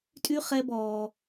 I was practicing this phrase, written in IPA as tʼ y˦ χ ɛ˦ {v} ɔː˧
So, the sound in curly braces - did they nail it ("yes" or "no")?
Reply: no